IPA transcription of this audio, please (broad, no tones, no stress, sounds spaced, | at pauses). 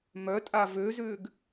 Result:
m œ tʼ a v ø z ʏː ɡ